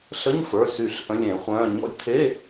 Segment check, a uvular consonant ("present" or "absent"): present